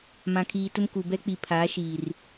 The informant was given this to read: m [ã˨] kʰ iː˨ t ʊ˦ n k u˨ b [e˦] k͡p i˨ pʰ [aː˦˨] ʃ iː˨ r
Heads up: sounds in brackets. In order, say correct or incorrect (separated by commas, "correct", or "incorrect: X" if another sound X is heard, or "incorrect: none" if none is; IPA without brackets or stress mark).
correct, incorrect: ɛ˦, incorrect: aː˨˦